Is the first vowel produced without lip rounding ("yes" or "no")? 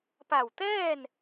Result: yes